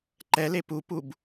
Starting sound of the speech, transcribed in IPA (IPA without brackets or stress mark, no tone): ǃ